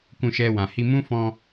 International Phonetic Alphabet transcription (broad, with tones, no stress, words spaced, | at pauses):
kũ˧ʃɛ˧wã˨ hi˧mũ˦ fɔ̃˧